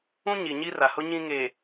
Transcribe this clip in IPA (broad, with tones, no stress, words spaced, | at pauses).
ũ˦ɲi˨ ɲi˦ra˨hʊ˦ ɲĩ˦ŋe˨